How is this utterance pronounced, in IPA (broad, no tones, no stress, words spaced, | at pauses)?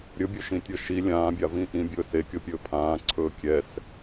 ɾʲɵbʲɵʃĩtʲɤ ʃi lʲãːbʲavĩ ʔĩbʲɵː sekʲɤpʲɵː pʰãːǀʰɵː kʲɛs